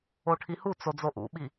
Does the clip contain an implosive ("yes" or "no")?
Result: yes